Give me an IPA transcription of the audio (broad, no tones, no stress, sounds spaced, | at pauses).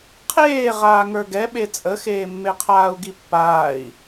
qʰ eː ʁ aː ŋ ə˞ ɡ ɛ ɓ e t͡sʼ ə x eː mː e qʰ aː u̯ ɡ i pː aː i̯